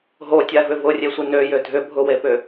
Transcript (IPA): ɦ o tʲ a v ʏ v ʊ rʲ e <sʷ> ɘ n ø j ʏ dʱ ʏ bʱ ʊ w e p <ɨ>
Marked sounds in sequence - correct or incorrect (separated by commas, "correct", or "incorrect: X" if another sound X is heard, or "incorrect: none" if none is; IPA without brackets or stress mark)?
correct, incorrect: ʏ